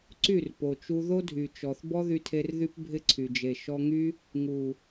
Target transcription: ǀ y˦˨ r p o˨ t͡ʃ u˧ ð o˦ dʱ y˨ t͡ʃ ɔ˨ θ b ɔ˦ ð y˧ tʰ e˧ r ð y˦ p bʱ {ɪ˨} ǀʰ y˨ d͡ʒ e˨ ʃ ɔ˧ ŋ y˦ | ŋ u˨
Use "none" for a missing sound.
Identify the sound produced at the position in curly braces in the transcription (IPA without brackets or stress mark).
ɪ˦